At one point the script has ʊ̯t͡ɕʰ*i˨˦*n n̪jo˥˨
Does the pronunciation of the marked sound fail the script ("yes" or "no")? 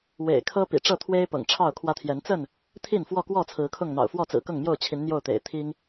no